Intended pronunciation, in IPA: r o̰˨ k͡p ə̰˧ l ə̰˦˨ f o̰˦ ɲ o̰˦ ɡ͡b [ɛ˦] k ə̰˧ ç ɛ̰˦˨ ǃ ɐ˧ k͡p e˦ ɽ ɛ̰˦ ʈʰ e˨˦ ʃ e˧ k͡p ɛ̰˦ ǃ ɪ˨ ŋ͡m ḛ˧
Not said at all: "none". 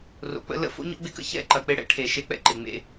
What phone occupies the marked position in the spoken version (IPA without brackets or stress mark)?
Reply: ɪ˦